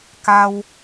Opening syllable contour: high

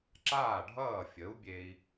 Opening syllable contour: falling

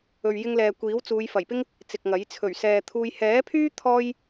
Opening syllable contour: low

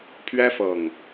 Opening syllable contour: high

